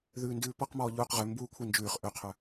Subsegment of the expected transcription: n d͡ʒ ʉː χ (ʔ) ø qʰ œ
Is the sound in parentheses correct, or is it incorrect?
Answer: correct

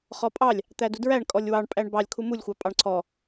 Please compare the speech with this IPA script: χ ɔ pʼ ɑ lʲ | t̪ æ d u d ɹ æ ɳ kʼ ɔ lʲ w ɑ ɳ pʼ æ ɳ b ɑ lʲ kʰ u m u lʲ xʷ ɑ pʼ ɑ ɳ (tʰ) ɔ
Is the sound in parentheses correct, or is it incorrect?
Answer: incorrect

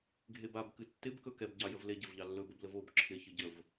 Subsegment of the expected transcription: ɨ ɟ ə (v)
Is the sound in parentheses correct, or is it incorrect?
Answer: correct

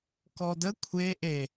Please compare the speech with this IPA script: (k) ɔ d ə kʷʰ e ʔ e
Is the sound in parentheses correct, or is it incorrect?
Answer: correct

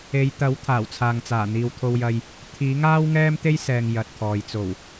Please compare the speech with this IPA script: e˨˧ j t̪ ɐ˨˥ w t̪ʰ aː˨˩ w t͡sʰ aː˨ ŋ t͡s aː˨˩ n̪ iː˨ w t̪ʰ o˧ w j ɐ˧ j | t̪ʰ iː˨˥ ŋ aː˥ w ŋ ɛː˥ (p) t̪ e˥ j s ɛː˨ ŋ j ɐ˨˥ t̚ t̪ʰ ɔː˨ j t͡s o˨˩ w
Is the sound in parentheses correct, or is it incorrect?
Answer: incorrect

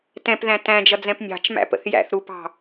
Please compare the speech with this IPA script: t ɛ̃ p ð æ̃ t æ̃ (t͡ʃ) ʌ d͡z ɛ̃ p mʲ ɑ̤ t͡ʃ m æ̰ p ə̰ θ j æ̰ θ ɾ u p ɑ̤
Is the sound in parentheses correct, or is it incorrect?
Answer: incorrect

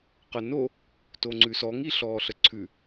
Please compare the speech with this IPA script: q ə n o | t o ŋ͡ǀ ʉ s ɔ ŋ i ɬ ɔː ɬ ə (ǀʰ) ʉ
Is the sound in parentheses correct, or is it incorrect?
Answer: correct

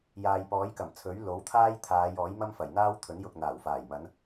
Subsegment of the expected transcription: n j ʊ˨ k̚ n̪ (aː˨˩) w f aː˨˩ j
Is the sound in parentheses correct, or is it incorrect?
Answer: correct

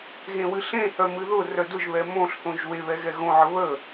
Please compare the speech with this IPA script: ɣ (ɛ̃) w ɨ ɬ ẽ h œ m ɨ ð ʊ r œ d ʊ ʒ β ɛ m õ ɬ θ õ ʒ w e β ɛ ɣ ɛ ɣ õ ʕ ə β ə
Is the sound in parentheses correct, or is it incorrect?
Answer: incorrect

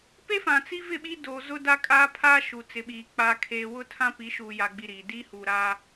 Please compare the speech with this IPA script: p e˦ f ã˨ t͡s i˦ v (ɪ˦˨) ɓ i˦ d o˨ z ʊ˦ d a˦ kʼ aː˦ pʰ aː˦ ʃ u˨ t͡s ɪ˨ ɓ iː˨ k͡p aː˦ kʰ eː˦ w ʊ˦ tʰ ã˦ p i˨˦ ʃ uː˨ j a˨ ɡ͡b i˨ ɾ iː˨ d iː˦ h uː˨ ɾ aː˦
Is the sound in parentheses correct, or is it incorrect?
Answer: correct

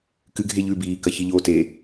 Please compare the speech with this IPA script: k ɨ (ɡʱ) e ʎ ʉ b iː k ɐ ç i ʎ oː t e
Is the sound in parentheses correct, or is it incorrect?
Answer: correct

